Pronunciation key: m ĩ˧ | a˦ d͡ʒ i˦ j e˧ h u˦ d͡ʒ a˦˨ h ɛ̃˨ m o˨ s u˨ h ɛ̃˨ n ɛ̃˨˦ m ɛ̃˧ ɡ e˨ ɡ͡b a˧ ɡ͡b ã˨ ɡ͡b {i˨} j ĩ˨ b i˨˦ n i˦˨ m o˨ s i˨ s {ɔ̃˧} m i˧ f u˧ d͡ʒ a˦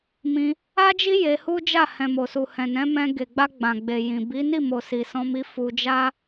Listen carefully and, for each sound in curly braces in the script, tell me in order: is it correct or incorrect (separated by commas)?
incorrect, correct